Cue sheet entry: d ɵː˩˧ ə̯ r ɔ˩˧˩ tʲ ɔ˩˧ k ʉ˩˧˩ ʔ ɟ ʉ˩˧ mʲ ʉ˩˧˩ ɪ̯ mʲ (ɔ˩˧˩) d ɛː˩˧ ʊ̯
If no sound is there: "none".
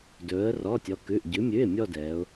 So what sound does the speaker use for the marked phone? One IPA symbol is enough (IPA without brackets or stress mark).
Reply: ɔ˥˧